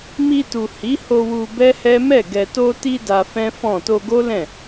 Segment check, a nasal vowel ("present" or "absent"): present